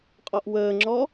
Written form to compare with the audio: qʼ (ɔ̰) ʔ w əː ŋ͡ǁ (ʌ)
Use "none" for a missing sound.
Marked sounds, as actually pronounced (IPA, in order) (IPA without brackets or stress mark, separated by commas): ɔ, ɔ